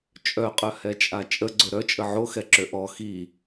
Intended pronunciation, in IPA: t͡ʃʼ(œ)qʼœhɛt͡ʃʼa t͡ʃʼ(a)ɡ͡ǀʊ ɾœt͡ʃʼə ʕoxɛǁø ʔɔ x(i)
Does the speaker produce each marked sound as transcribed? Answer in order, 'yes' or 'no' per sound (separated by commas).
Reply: yes, no, yes